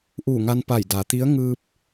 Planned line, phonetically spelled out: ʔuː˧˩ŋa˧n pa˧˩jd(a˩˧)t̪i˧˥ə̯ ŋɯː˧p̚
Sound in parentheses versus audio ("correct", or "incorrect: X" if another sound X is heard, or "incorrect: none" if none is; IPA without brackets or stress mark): correct